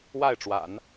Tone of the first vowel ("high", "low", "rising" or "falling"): falling